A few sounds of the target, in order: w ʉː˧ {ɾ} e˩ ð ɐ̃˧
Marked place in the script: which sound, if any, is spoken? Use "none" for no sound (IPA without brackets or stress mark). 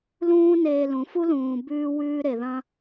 ɾ